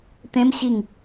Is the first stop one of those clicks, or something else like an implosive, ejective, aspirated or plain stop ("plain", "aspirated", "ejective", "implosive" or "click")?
plain